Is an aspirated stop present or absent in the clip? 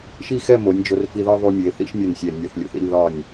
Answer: absent